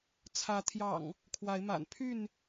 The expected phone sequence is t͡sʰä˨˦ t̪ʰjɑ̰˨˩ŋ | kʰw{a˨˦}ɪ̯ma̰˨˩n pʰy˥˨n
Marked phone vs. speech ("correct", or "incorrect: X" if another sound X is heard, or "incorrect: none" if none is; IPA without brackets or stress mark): correct